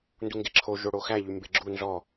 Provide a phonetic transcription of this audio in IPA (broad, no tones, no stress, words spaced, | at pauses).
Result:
nduŋɡeǁʰo ʒoɽoxæ ʎymbeɡ͡ǁu nzɔ